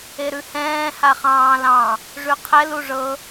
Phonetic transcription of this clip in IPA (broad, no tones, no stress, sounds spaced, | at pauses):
e ɾ ʉ h ɛ̃ː h a χ ɑ̃ː l ɑ̃ | ʐ ʉ qʰ ɛ l u ʐ ɤ